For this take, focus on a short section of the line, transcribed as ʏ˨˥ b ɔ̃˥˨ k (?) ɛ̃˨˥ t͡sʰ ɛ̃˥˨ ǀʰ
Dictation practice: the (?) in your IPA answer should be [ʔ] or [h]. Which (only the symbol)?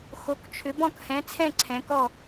h